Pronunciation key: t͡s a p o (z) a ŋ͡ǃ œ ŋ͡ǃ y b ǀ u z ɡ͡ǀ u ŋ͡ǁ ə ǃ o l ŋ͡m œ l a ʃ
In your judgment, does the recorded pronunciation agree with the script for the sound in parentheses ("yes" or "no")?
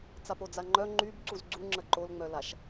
no